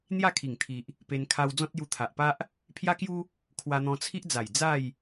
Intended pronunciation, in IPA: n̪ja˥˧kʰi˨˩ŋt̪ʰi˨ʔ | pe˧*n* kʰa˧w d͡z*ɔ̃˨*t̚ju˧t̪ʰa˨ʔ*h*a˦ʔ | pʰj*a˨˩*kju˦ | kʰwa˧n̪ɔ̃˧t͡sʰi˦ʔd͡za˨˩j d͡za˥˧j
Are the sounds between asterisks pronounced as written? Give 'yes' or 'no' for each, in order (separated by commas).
yes, no, no, no